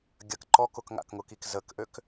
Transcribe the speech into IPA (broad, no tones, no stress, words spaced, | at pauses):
ɡʲɐk ǃɔk ʊkŋa̰kŋʊkik zəkʔøk